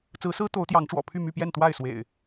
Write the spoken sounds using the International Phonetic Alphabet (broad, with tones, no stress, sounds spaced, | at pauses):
t͡s ɹ̩˨˦ s ɹ̩˦ t̪ o˨˦ ʊ̯ t̪ j ɑ˨˦ ŋ ʈ͡ʂ w ɔ̰˨˩ pʰ y˥˨ m y˥˨ p j ɛ˥˨ n t̪ w a˥˨ ɪ̯ s w ḛ˨˩ ɪ̯